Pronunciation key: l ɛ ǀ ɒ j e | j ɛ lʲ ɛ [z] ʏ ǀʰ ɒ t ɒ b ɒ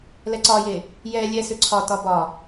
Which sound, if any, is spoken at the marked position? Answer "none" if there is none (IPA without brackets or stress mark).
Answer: s